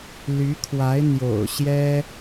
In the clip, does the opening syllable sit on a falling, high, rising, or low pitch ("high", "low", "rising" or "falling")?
rising